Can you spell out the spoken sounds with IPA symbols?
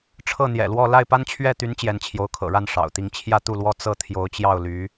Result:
ʈ͡ʂʰɤ˥˩ n̪jɛ̰˨˩lwɔ˥˧ la˥˩ɪ̯pa˥nt͡ɕʰɥɛ˥˩t̪y˧˥n t͡ɕjɛ˧˥nt͡ɕʰjo˧˥ʊ̯kʰɤ̰˨˩ɻa˥˩n ʂɑ̰˨˩ʊ̯t̪i˥˧ŋ t͡ɕʰjä˥˧t̪u˥˩lwɔ˥ t͡sɤ˥˩ t̪ʰjo˧˥ʊ̯t͡ɕjɑ˥˩ʊ̯ly˧˥

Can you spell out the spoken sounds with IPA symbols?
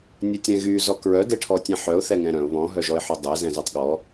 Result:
nʲœtʲɾɛ̃ɣy zɔkɹœ deʈʰɔtʲɛ̃ħœʊ̯ θɛŋɛ̃ɾœ̃ʊ̯ βɔ̃ ɦœʒɔɪ̯ħodˤɛ zɛ̃zœtˤɠɔ

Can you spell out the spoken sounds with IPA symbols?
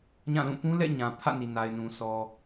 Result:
ɲã˦˨lũ˦˨ pũ˦lɛ̰˦˨ɲã˨ pʰä̰˦˨ni˨na˨ɪ̯nũ˨ sɔ˨

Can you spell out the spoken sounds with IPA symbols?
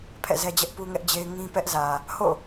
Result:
pʰɛ̰˦˨zɛ˦d͡ʑɛ˦ʔ pu˦ŋɛ˦ʔd͡ʑe˦ɪ̯ ŋĩ˦ pɛ˦ʔ zä˨ | ho̰˦˨

